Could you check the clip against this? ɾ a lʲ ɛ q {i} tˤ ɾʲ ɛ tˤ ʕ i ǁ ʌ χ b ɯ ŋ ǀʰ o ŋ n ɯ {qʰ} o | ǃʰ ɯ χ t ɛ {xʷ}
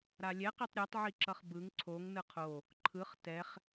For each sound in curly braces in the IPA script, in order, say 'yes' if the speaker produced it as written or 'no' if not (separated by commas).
yes, yes, no